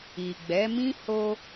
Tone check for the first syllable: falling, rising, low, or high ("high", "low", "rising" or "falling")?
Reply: low